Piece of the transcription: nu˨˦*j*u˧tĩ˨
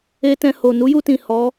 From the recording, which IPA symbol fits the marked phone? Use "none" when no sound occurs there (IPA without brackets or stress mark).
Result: j